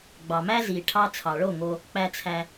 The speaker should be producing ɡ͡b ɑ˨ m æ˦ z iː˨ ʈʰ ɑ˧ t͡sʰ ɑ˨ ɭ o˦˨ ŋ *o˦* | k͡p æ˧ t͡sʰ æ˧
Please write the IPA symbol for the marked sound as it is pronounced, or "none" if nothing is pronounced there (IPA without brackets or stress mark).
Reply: o˧